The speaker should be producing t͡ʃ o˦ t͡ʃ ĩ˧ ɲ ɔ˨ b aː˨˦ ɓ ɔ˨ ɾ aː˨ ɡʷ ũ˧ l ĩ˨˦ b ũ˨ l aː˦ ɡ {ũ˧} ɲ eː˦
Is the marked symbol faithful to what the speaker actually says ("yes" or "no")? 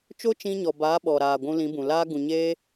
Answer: no